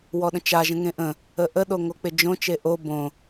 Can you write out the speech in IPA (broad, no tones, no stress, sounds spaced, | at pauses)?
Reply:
w ɔ ɗ ə̃ t͡ʃ a ʒ ə̃ ŋ ẽ ʔ ə̃ | ə ʔ ə ɗ o ŋ o k͡p ɪ d͡ʒ õ t͡ʃ e ʔ o b õ